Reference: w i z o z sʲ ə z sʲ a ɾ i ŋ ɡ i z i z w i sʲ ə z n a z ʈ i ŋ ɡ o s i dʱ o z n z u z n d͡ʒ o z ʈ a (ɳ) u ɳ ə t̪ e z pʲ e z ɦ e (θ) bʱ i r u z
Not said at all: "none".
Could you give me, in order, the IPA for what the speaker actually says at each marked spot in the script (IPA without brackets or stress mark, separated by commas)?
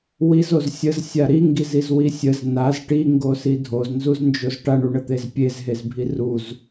ɳ, z